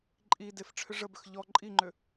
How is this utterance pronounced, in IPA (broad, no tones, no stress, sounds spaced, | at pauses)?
ǃʼ i d e f ʈ͡ʂʰ ʏ ʐ ə b ʏ x ʎ ɔ ǃʼ i ŋ͡ǃ ʏ